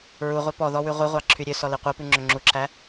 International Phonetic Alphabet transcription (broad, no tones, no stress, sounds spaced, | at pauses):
ɹ u ʁʷ ɛ p ɔ ð ɔ w ʉ ʁʷ i ʁʷ ɑ ǁʰ y ɾʲ ø s ɔ l i qʷ œ p ʉ ŋ͡ǁ ɵ ŋ͡ǁ u ǁʰ æ